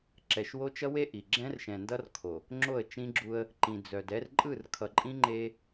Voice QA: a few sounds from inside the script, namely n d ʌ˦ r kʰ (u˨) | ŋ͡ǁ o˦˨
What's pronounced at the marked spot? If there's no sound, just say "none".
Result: o˨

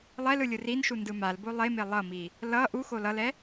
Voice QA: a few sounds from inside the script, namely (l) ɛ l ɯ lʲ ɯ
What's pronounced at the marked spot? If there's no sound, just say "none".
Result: lˠ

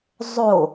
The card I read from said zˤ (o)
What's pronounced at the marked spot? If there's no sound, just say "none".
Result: o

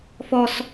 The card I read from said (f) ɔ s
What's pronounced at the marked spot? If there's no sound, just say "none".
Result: f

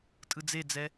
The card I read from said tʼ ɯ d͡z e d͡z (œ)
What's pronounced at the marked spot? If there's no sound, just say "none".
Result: ɛ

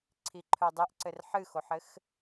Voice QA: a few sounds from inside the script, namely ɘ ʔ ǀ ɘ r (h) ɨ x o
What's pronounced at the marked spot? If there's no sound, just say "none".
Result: ħ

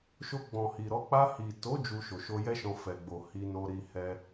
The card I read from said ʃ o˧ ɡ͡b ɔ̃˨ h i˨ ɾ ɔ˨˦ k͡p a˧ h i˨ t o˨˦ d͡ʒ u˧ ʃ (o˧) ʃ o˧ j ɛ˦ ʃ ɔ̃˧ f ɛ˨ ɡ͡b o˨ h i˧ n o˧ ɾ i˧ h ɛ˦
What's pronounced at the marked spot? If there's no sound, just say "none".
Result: o˨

